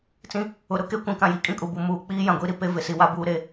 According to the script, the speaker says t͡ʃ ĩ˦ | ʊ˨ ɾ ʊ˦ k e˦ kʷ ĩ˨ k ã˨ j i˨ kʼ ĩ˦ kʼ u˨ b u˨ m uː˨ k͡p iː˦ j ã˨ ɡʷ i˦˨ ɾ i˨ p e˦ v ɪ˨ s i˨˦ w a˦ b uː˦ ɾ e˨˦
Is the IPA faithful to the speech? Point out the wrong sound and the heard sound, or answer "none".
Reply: t͡ʃ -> t͡s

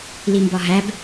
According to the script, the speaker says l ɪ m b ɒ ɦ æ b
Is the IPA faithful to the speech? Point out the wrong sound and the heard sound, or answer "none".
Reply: ɪ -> i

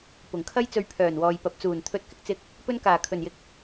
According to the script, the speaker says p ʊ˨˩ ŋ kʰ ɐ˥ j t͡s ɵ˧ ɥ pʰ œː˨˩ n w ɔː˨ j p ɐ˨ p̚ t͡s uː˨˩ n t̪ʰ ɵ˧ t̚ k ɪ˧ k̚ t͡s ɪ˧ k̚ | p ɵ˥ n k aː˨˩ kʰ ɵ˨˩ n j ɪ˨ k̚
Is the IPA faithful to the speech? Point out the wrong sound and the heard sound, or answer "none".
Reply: none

